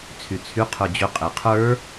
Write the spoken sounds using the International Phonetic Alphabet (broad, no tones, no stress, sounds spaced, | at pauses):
t͡sʰ y t͡sʰ y qʰ ə˞ d͡ʑ ʏ qʼ e qʰ ə˞